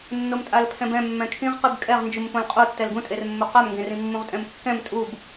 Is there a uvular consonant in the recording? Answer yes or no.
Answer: yes